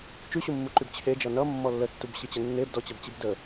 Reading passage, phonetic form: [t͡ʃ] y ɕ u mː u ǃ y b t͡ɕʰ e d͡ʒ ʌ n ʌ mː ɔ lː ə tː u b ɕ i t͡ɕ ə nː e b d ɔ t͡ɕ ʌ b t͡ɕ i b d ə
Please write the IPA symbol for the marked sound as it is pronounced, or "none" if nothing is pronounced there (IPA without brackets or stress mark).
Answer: t͡ʃ